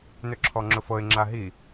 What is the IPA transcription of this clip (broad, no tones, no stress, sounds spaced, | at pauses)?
n ʏ ǁʰ ɔ ŋ͡ǁ ʊ f ɤ ɪ̯ ŋ͡ǁ a ɦ i